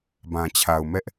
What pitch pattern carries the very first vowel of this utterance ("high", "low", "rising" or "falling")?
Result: low